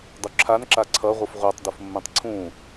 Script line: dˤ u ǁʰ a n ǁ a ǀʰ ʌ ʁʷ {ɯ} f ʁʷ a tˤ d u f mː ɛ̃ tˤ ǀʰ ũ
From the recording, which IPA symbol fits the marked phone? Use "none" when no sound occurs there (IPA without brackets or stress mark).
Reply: ɯ